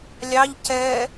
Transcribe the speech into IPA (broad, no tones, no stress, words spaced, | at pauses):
lʲɑʎ cɛ